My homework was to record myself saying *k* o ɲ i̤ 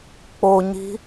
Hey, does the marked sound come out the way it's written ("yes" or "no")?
no